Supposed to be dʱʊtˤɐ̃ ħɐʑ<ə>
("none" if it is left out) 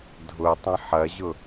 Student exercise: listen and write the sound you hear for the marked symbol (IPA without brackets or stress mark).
ʊ